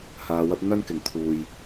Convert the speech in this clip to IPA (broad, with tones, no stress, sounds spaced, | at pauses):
h aː˧ w ɐ˥ p̚ n̪ ɐ˥ n k ɪ˨ ŋ t̪ʰ uː˨ j